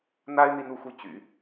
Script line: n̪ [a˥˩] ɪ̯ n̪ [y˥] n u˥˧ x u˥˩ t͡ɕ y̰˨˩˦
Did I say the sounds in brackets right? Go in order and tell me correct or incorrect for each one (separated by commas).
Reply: incorrect, incorrect